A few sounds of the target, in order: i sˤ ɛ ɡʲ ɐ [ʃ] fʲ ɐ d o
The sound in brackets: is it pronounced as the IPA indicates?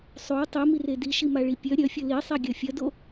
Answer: no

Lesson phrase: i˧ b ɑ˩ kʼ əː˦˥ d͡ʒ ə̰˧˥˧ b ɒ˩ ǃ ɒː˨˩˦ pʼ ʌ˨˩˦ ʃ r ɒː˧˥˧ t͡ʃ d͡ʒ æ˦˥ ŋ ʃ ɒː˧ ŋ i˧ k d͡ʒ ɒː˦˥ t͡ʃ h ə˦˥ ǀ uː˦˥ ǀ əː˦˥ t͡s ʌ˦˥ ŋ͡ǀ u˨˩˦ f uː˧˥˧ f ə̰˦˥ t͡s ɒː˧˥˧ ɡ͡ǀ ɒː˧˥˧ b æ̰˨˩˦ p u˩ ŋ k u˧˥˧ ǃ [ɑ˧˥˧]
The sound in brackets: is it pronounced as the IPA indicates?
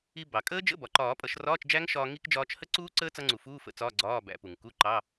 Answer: yes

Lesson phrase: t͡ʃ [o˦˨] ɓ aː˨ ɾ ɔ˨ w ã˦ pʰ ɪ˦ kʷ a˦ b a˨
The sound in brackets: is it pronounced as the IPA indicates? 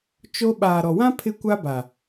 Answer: no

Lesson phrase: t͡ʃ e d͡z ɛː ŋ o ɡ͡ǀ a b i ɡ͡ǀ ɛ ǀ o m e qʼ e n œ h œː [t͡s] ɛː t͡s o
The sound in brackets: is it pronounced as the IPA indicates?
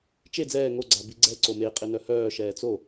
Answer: no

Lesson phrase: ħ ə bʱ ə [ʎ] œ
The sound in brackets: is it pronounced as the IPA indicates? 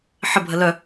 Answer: no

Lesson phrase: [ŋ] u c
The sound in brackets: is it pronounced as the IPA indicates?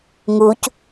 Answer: yes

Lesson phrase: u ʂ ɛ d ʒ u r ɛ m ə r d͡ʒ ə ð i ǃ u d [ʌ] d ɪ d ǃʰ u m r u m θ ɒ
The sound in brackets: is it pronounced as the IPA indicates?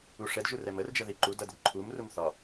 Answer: yes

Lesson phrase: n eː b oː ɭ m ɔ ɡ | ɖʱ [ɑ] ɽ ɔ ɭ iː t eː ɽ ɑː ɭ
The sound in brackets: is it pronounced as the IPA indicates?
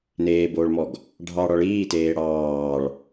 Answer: yes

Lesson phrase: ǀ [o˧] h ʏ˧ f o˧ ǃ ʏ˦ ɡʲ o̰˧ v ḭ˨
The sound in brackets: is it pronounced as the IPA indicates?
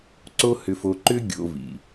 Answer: no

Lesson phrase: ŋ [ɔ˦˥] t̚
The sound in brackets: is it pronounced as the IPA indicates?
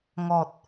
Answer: no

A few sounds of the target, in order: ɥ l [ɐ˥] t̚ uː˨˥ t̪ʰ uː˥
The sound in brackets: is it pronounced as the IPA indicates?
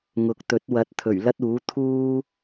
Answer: yes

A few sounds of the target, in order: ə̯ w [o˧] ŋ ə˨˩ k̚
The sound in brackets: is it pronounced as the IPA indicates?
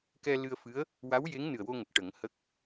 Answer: yes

